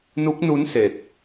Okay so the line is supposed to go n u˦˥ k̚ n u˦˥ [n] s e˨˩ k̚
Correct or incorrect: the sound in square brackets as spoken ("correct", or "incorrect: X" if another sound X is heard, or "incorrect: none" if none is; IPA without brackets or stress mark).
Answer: correct